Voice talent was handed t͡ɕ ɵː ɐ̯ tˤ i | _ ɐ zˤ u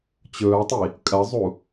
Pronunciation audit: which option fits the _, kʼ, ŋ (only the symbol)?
kʼ